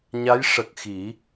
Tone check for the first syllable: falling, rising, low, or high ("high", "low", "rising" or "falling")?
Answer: rising